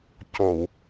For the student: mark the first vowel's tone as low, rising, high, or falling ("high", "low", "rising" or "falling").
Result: low